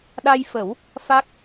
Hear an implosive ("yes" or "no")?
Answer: yes